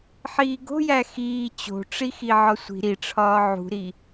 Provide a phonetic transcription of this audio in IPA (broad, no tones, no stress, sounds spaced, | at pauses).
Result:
ħ iː ɡ o̤ j æ x iː t͡ɕ o̤ ʈ͡ʂ i x i ʕ ɒ sʷ i̤ ɾ i ʈ͡ʂʰ ɒː ʕ ṳ ɾ i